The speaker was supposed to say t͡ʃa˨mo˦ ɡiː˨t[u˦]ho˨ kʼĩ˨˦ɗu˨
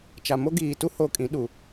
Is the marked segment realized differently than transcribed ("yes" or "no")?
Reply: no